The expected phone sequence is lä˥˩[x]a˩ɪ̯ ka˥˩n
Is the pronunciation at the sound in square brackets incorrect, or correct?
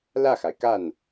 correct